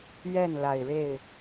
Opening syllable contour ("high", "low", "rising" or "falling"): falling